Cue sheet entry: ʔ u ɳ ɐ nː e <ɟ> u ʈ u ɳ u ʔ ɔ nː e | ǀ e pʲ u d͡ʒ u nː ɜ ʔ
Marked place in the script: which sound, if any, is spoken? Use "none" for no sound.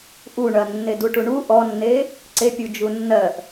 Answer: d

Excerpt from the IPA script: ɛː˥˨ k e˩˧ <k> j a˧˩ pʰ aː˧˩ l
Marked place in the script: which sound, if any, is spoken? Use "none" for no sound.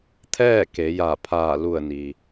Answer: none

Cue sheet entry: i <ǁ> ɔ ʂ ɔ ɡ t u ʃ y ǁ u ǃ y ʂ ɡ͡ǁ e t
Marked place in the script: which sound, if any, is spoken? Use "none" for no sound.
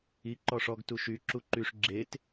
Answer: ǃ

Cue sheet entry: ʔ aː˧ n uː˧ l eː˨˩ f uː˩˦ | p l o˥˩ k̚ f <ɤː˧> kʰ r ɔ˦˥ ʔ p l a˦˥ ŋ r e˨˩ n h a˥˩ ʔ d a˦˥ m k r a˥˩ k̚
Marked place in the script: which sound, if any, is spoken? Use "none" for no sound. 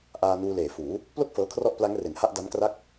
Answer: ɤː˧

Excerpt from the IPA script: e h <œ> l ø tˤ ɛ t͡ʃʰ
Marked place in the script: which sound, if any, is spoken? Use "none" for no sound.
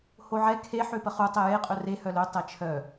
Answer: œ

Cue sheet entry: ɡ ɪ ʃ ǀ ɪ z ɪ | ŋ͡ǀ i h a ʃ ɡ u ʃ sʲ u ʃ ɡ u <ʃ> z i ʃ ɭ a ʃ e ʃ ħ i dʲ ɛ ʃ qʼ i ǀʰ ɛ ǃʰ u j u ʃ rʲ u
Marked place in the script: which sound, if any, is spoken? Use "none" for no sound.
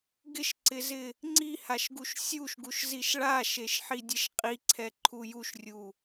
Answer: ʃ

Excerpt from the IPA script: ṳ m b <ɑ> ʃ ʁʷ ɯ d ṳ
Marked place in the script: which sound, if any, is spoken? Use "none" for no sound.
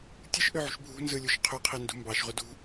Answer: ɑ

